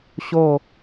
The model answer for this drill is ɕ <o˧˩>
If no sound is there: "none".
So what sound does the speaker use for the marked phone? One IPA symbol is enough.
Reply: o˧˩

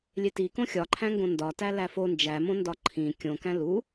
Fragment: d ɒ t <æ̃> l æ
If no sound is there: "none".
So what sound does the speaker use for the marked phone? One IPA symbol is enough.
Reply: æ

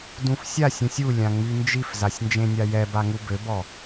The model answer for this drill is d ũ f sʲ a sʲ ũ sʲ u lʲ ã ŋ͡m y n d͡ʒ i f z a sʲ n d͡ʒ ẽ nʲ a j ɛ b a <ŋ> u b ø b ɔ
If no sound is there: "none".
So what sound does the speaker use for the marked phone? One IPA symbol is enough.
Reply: ŋ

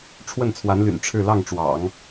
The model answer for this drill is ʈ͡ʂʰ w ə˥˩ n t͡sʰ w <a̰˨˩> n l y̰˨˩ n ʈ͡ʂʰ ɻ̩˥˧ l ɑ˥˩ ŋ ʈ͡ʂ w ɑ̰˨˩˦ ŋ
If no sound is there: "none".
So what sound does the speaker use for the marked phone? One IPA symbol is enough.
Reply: a˧˥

